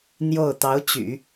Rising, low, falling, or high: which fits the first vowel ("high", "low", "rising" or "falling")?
falling